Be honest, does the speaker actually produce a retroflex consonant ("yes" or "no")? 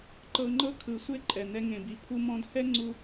no